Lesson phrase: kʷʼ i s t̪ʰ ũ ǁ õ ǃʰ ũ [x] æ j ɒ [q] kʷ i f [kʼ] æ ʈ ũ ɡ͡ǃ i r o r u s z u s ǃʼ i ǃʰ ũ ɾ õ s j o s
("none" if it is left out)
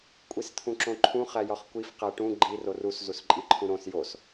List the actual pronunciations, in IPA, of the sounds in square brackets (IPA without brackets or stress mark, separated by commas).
χ, χ, q